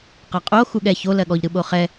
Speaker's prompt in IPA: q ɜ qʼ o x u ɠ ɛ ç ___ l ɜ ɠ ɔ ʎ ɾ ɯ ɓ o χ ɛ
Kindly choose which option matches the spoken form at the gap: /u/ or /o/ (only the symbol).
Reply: o